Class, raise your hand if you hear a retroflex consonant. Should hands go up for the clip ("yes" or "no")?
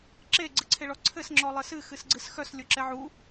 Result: yes